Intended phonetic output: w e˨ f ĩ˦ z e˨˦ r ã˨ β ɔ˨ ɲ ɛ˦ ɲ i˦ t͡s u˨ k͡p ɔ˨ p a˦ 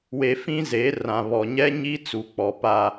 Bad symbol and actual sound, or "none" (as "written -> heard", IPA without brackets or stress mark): none